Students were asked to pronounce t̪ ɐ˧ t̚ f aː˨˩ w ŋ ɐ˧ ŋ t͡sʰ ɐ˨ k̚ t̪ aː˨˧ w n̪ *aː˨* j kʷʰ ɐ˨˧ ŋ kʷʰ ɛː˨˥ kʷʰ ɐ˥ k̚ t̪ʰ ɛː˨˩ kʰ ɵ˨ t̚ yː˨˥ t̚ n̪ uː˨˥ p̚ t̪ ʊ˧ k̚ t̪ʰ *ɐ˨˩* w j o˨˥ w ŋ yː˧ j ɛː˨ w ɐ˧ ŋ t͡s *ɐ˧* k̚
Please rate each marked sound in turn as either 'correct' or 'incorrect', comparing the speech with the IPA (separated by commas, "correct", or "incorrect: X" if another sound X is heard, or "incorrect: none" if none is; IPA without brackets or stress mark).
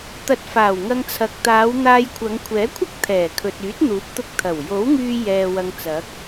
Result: incorrect: aː˧, correct, incorrect: ɐ˨˥